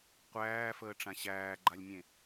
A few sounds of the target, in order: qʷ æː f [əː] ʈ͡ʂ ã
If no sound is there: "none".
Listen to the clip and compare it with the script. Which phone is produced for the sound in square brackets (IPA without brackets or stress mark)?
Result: əː